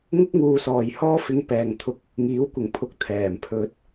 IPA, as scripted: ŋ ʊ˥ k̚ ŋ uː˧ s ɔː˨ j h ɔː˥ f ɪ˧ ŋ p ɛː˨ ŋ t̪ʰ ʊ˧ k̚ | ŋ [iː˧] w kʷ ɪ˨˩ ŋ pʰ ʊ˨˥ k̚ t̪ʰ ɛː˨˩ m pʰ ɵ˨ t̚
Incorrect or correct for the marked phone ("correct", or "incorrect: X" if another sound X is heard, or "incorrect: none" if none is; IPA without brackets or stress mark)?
incorrect: iː˨˥